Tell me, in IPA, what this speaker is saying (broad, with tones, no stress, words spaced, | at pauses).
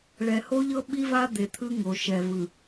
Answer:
ɭɛ˨ho˦ʎɤ˦ ɓi˦va˦ d̪e˨t̪ʰɯ˦ ŋo˨ʃɛ˨vɯ˨